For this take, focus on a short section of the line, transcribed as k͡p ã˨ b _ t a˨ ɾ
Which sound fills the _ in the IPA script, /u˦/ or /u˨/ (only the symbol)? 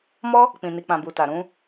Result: u˨